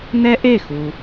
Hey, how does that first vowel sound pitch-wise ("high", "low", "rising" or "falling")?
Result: high